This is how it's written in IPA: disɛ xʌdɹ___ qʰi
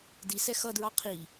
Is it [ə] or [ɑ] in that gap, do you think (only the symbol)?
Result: ɑ